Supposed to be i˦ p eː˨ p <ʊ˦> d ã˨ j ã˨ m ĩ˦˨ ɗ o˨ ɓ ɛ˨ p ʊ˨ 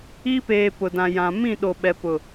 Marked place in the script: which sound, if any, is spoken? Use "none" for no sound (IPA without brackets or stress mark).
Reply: ʊ˨